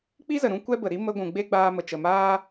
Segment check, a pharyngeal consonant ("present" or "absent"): absent